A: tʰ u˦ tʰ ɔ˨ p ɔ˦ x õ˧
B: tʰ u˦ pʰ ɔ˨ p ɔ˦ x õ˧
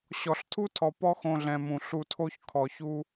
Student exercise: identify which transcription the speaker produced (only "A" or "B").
A